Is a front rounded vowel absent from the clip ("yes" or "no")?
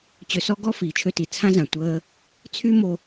no